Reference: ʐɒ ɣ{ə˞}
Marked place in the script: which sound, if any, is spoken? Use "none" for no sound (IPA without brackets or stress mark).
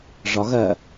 ɜ